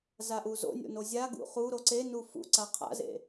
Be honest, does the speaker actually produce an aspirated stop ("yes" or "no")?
yes